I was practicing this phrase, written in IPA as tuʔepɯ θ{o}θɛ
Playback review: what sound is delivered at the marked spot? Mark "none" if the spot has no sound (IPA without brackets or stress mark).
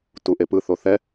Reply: o